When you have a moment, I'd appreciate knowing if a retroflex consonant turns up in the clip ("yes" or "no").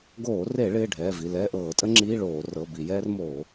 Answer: yes